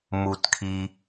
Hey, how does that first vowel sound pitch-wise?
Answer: low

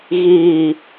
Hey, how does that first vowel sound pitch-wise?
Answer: low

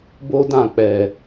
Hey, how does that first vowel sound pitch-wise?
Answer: high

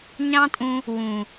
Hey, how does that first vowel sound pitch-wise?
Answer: high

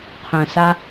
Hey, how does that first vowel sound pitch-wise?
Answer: low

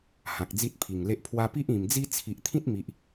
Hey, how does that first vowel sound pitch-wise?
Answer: low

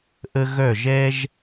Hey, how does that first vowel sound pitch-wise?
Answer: high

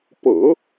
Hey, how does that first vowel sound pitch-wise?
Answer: low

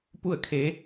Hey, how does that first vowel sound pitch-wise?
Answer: falling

